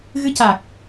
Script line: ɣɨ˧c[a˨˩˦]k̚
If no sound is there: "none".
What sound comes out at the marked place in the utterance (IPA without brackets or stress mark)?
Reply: a˨˩